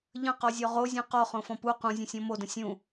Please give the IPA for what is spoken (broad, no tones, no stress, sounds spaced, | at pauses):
ʎ ə̃ q ɔ zʲ ɔ ʁ o zʲ ɔ̃ q ɔ χ õ f ɔ̃ p u q ũ zʲ ə̃ sʲ ɔ̃ m o d ə̃ sʲ ũ